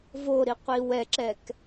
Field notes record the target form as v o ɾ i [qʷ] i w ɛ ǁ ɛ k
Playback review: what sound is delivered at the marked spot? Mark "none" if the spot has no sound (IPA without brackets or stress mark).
qʷ